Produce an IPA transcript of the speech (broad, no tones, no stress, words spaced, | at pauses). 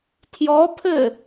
tʰjɔpʰɘ